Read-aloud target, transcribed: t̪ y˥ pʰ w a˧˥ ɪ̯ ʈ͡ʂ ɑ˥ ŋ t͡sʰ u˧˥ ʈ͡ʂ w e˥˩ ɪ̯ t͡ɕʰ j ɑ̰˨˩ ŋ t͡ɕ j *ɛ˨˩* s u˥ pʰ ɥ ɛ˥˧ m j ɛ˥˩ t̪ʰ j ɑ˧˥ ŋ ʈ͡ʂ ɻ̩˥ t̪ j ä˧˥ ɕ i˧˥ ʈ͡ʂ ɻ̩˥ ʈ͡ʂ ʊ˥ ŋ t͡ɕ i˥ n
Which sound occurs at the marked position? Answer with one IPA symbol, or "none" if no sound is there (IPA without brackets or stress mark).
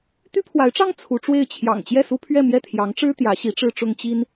ɛ˥˩